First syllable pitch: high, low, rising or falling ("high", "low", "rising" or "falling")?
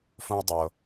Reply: high